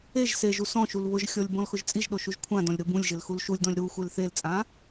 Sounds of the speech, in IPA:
e ʒ s e ʒ u s ɔ̃ ʃ u l β ʊ ʒ xʲ ɔ lʲ b ɔ̃ l x ʊ ʒ t͡sʼ i ʒ ɗ o ʃ u ʒ kʷʰ ã d ɔ̃ lʲ ɾ ʊ b ũ lʲ ʒ ɪ l x u l ʃ u lʲ d ɔ̃ lʲ ɾ u xʷ e l θ e l t͡sʼ ã

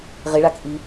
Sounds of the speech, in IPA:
ʁ ɪ ɭ a k ʔ i

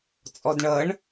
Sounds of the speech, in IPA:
t͡sʼ ɔ d ɳ ʌ ɳ

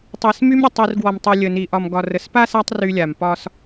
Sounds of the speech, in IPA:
tˤ i˨ s m y˦ m ɾʲ ə˨ tˤ i˨ r ɡ w ɔ˨ m tˤ y˨ lʲ ə˨ n i˨ ʔ ɒ˨ m ɡ ɒ˨ r ə˨ s p a˦ s a˦ tˤ r y˦ lʲ a˨ m p ɒ˦ s

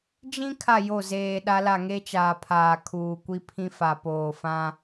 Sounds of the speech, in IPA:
d͡ʒ ĩ˦ kʰ a˦˨ j o˦˨ z eː˨ ɗ a˦ l a˦˨ ŋ e˦ t͡ʃ aː˨ pʰ aː˨ kʰ uː˨ kʷ i˦ pʰ ĩ˦ f a˨ p oː˨ f ã˦

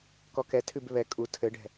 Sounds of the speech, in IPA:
k ɔ k ɛ tʰ ʉ b β ɛ kʼ u tʰ ɘ ɖ ɛ̤

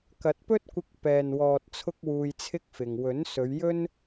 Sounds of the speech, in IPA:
k ɐ˨˥ t̚ p ɵ˥ t̚ kʷ ɪ˧ k̚ p ɛː˨ n w ɔː˨ t̚ t͡sʰ ʊ˥ k̚ w uː˧ j t͡sʰ ɪ˥ k̚ f ɪ˨ ŋ w ɵ˨˥ n s ɵ˨˧ ɥ j ɵ˥ n

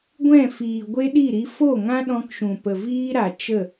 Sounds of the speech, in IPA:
ɡʷ ɛ̃˦˨ f iː˨ ɡʷ e˦ ɗ i˦˨ ɾ i˧ f o˦˨ ŋ ã˦ ɗ ɔ̃˧ k ʃ ũ˨ p ə˨ v iː˦ ɾ a˨ t͡ʃ ə˦˨

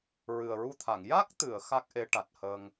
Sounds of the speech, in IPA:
ɹ ɨ˨˩ ə̯ ɹ u˧ t̪ʰ a˨˩˨ ŋ j a˦˥ k̚ t̪ ɨ˨˩˨ ə̯ x a˦˥ k̚ ʔ e˧˥ ʈ a˨˩ t̚ h əː˧ ŋ

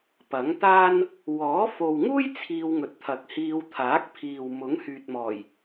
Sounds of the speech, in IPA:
p ɐ˨˥ ŋ t̪ aː˥ n | w ɔː˨˥ f o˨ w ŋ uː˥ j t͡sʰ iː˧ w ŋ ɵ˨ t̚ t̪ʰ ɐ˨ k̚ h iː˧ w t̪ʰ aː˨˥ k̚ pʰ iː˨ w m ʊ˨˥ ŋ h yː˨ t̚ m ɔː˨˩ j

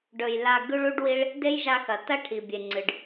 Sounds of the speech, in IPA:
ɖ ɵ˨ j l a˨ ɡ ʉ˦ ɭ u˦ ɖ w i˦ ɭ | d e˦ j ʒ a˧ x ɐ˨ t ɐ˦ ʈʰ i˨ bʲ e˨ ŋ͡ǀ ɨ˨ ɖ

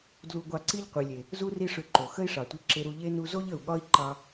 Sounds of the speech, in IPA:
d l u˧ ɡʷ ɑ˧ ǀ i˥ ʎ qʷ i˩ lʲ e˩ | z u˥ r i˥ ʂ ʏ˧ ǃ o˩ x ə˥ i̯ ʂ ɑ˩ tʷ i˧ ǁ e˧ ɾ u˧ ʎ e˥ n u˧ z o˥ ʎ ə˩ u̯ ɠ ɒ˥ i̯ ǃ ɑ˧

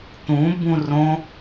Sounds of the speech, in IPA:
t̪ ũ b ũ r õ

